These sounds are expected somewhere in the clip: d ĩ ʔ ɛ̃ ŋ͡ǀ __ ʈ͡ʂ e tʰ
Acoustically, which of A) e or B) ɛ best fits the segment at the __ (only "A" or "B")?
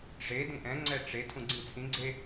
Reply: B